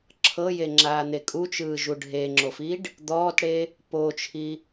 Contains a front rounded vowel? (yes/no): no